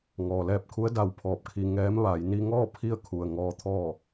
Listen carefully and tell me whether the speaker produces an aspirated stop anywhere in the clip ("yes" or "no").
yes